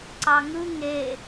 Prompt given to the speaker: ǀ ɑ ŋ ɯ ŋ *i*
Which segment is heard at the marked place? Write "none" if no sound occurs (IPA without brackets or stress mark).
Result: e